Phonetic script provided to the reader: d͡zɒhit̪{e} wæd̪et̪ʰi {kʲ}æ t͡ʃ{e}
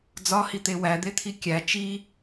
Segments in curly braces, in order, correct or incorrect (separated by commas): correct, correct, incorrect